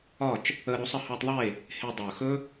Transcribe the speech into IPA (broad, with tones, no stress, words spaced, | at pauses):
ɒ˦˨t͡ʃ | əː˧ɾo˨˦sˤɘ˧ hɵː˧tˤðˤe˦˨ | he˧ dˤɵː˨xɵ˦